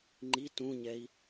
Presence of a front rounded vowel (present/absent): absent